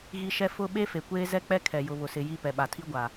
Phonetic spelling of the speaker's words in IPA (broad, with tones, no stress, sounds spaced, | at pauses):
ɣ i˦ ʃ ɛ˦ f ʊ˦ ɓ e˦ f e˨ kʷ eː˦ z ɛ˦ k͡p ɛ˦ kʰ ɛ˨ j ʊ˨ β ʊ˨ s ɪ˨ j i˦˨ p ɛ˨ ɓ a˨ tʰ i˦ ɡʷ a˨